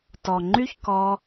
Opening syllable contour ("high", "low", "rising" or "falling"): low